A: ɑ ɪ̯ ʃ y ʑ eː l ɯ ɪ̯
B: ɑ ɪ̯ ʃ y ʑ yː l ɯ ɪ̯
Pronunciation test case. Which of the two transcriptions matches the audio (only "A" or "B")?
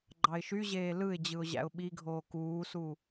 A